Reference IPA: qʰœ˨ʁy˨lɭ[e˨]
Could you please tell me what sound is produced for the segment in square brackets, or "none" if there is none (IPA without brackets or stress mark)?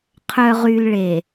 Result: e˨